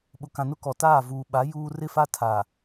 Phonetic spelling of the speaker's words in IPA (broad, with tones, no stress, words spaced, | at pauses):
ɓʊ˨kã˨nʊ˦ kɔ˨taː˦˨ vuː˨ɓa˨˦ juː˦ rɪ˦fa˦ tʰa˨